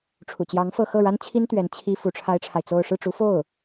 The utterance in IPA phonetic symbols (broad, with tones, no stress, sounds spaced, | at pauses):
ʈ͡ʂʰ ṵ˨˩ t͡ɕ j ɑ˧˥ ŋ f ɤ˥˧ x ɤ˥˩ ɻ a˥ n t͡ɕʰ i˥ n t̪ ɥ ɛ˧˥ n t͡ɕʰ i˥ f u˧˥ ʈ͡ʂʰ a˥ ɪ̯ ʈ͡ʂʰ a˨ ɪ̯ t͡s o˥˧ ʊ̯ ʂ ɻ̩˥˩ ʈ͡ʂ u˧˥ f o˥˩ ʊ̯